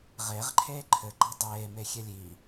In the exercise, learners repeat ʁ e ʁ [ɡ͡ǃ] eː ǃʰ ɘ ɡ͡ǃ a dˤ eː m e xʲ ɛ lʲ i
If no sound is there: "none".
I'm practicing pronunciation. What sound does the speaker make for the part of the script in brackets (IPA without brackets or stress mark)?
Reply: ǃʰ